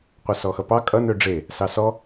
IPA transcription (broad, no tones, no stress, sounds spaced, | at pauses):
qʷ ʌ s ɔ x ʌ p ɑ kʼ ʌ n ø ɖ͡ʐ e | s ɑ s ɔ